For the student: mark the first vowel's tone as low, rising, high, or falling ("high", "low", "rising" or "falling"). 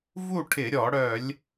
falling